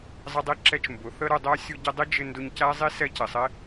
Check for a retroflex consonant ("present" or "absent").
absent